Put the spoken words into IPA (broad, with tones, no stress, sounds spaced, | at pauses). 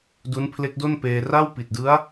d u˦˥ n pʰ l e˦˥ k̚ d o˥˩ n p eː˧ r a˥˩ w p i˨˩ t̚ d ɯ˦˥ a̯